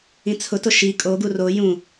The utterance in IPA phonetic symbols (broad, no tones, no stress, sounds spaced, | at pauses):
ĩ t͡sʰ ʊ t ʊ ʃ i kʼ o ɡ u r o j ũ